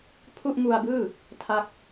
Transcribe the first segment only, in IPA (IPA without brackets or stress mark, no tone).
pʰ